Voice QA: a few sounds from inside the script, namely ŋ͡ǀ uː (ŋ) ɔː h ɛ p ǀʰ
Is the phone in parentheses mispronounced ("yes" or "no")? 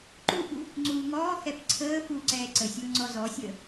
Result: no